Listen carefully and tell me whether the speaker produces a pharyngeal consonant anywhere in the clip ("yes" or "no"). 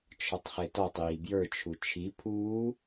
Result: no